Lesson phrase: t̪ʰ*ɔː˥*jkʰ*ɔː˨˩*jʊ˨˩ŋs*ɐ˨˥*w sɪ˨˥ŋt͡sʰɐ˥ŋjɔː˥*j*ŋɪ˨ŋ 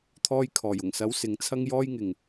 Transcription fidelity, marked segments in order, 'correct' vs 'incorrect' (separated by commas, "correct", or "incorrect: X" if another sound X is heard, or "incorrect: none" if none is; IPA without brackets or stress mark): incorrect: ɔː˧, correct, correct, correct